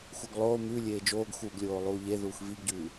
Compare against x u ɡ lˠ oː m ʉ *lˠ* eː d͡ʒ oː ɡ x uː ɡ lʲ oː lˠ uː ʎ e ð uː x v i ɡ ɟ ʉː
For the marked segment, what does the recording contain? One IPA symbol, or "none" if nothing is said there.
lʲ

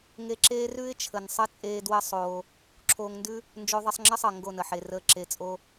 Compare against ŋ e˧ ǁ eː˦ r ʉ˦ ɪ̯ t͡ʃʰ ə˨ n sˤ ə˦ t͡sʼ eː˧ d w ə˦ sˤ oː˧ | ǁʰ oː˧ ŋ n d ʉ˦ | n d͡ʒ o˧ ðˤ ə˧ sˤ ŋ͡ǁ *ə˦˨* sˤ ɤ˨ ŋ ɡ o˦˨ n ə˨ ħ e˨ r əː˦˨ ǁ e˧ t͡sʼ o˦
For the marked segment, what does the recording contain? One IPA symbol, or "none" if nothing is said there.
ə˦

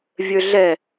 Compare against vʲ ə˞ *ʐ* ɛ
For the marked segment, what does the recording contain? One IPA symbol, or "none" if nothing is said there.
ɮ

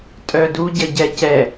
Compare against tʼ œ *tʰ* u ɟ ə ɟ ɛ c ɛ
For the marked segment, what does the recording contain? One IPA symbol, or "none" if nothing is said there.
d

